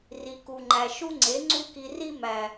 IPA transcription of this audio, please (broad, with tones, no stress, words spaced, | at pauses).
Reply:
ri˧ku˧ŋ͡ǃæ˧ ʃu˦ŋ͡ǀe˨˦ ŋ͡ǀu˦ki˧ri˦ mæ˨